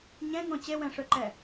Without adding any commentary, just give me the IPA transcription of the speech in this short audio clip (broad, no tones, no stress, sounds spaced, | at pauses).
ɲ ɛ̃ ŋ õ t͡ɕ e w ɛ̃ ʂ ø ǃ ɛ